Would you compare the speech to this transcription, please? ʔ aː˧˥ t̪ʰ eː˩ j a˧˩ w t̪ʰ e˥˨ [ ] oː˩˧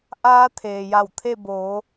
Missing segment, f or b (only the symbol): b